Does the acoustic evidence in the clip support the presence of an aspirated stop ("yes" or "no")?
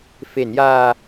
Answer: no